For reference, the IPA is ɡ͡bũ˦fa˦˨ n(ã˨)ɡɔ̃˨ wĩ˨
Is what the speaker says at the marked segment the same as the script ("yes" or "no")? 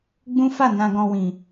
yes